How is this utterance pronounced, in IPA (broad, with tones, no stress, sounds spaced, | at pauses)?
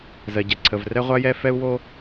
z ɜ˩ ɟ ɛ˩ ǀʰ ə˩ v r ɛ˥ ʁʷ a˥ j ɛ˥ f ɛ˥ u̯ w o˥